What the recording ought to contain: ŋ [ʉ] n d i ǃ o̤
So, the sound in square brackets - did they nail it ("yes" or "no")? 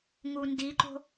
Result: no